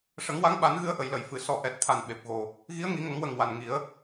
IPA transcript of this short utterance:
ʂə˨˩˦ŋwa˧˥ŋɓa˨˩˦n ɣɨ˧ə̯ʔə˨˩˨jlə˨˩˨j fɨ˨˩˨ sɔ˨˩ʔɛ˨˩t̚t̪ʰa˨˩n ɓe˨˩p̚ɣo˨˩ | ɣi˧˥ə̯ŋi˨˩˦ŋə˨˩˦ŋwə˨˩ŋ wa˨˩nŋi˨˩˦ə̯

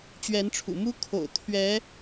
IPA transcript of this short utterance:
t͡ɕɥɛ˧˥nʈ͡ʂʰṵ˨˩ mu˥ kʰo̰˨˩ʊ̯t̪ʰɥɛ˧˥

